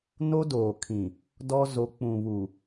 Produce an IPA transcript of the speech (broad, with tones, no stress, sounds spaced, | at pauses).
n o˦ d oː˨ kʰ ĩ˨ | d ɔ˦ z o˨˦ k͡p ũ˨ β u˨